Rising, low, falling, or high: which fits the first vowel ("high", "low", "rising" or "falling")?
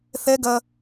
high